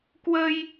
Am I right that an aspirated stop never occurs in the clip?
yes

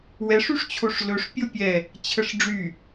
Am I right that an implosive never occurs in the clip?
yes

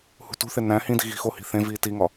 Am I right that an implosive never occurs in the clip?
yes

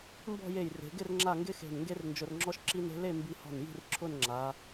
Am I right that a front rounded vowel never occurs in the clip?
yes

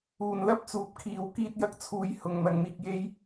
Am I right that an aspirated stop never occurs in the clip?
no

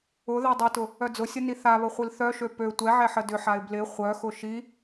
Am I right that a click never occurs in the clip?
yes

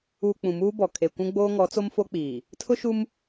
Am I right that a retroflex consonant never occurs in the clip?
yes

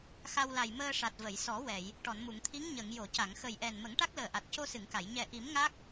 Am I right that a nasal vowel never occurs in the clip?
yes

